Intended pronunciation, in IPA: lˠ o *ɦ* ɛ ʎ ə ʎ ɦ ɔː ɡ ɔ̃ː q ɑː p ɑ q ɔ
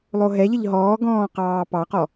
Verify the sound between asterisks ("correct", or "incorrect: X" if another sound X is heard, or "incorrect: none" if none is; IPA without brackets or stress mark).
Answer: correct